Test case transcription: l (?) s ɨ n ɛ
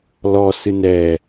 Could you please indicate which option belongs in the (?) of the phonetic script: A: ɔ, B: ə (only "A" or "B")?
A